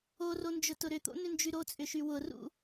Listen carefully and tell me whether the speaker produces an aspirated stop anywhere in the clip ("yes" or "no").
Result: no